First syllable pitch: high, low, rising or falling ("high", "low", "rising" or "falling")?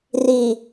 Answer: low